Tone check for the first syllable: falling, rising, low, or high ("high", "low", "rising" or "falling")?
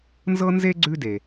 high